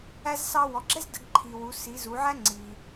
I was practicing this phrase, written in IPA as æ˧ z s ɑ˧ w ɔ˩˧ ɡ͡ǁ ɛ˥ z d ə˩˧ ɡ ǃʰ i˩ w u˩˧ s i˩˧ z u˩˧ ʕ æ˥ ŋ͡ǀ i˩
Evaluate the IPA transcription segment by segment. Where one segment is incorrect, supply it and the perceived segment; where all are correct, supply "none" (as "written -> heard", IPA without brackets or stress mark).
none